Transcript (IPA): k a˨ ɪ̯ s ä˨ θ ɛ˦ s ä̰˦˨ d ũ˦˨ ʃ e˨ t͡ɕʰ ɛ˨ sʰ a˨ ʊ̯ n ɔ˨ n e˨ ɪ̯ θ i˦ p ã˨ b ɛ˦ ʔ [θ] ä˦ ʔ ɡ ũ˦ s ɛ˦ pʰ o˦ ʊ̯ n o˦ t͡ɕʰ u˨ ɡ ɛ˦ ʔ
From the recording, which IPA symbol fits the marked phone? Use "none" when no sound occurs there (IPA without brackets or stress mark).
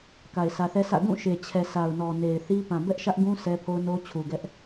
ʃ